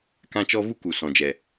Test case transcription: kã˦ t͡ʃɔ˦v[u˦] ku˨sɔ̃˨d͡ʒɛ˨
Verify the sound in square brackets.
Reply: correct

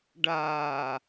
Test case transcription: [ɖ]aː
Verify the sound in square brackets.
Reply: correct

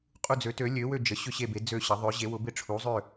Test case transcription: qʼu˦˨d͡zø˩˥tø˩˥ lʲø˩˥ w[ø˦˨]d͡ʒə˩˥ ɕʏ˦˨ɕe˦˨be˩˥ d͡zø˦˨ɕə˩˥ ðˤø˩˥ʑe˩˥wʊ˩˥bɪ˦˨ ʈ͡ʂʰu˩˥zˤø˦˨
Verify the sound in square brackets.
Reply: correct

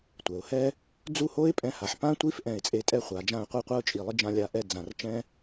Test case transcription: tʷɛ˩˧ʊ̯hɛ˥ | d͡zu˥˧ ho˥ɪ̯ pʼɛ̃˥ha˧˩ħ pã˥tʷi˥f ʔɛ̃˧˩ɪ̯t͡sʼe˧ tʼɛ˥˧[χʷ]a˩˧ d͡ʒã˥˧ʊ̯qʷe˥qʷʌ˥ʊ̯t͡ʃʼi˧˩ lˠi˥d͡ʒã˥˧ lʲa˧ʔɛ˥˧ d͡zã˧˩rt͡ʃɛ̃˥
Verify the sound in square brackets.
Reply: correct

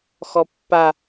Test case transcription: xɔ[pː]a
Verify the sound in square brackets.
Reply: correct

